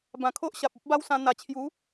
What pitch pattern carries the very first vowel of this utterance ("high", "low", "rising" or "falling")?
low